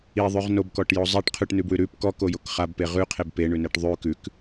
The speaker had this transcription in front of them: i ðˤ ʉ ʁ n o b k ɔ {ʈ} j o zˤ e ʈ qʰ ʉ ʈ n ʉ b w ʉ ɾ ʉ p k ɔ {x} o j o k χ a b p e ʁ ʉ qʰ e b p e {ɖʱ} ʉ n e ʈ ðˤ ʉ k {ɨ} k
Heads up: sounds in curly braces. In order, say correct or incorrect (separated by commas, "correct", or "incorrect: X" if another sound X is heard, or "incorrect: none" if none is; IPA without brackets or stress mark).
correct, incorrect: k, incorrect: ɳ, incorrect: ʉ